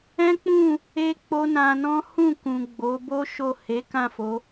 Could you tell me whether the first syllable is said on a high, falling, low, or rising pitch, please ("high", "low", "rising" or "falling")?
high